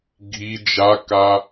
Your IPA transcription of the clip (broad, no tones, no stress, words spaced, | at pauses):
ɡʱi d͡ʒaka